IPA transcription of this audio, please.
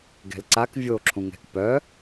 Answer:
ɡ ɛ̤ l ǀ a k vʲ o ǁʰ ũ ŋ ɛ̤ k p œ

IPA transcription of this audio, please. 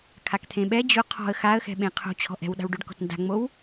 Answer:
kʰ a k t̪ʰ ẽ ɓ ɛ d͡ʑ ʊ qʰ ɔ̤ ə̯ x a ə̯ x ɛ̤ ɓ ẽ qʰ o̤ t͡ɕʰ ɔ̤ ʔ ɛ̤ w ɗ a̤ w ɖ o ɖ k ɔ̤ t n d a̤ ŋ͡m o w

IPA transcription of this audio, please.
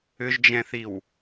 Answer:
ʏ ʒ d͡ʒ ɛ̃ θ i w

